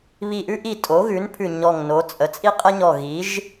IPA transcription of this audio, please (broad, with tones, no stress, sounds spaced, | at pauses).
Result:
β i˧˩ ʔ ʉ˥ ʔ i˧˩ tʼ o˩˥ ɣ ʉ˩˥ n pʰ ʉ˧˩ ɲ ɔ˧˩ ŋ n o˩˥ t͡sʼ ə˩˥ t͡sʼ i˥ qʼ ə˥ ɲ ɔ˧˩ ɣ i˩˥ ʒ